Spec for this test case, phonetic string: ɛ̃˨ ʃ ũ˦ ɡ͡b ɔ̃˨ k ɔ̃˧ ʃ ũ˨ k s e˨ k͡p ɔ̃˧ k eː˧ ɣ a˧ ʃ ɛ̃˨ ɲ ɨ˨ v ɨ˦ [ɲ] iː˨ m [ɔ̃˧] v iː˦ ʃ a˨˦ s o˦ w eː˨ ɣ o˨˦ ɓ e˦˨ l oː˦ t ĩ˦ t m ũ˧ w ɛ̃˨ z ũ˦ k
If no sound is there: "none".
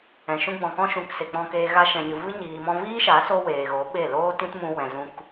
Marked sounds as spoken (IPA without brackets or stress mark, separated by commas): ɲ, ɔ̃˧